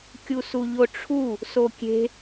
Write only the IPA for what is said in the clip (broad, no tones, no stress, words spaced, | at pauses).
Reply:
kʲusuʎoʈ͡ʂʰu | sokʲe̤